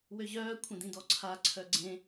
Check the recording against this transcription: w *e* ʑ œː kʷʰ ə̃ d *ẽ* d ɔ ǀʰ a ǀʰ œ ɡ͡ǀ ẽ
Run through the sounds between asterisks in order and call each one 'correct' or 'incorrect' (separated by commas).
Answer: incorrect, incorrect